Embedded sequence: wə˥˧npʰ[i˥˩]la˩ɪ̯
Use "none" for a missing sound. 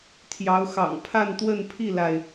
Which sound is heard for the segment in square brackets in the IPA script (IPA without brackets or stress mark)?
i˥˩